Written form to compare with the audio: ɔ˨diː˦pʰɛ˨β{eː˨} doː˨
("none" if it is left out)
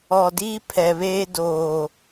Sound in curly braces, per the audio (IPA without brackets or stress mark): eː˦